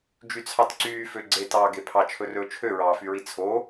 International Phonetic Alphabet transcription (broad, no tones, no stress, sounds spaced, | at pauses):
d͡ʒ y t͡sʰ ɑ t ǀ yː f ø ɡ͡ǀ e t ɑː ɡ e pʰ ɑ t͡ʃʰ ɵ r ɵː t͡ʃʰ ø ɹ ɑː f y ɹ i t͡sʰ o